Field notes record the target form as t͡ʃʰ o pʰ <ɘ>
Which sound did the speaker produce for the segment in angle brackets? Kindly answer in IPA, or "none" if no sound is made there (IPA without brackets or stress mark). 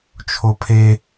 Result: e